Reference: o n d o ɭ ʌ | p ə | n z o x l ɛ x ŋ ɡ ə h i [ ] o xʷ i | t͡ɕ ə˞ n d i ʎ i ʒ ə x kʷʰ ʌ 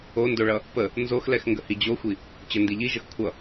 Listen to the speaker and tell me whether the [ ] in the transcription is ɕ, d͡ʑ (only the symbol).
d͡ʑ